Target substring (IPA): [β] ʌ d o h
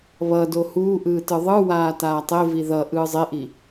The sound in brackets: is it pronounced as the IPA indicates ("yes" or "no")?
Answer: yes